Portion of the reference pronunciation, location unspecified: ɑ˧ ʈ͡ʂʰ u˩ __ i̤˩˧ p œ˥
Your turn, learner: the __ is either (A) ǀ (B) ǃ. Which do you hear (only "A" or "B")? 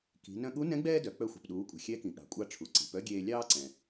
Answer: A